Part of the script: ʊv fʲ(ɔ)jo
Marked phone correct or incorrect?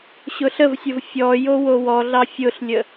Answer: correct